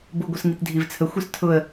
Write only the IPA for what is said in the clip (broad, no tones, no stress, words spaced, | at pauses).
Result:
bʊɡʷɘs ŋitdʱivt͡sʰəxʷis tʰʊə̯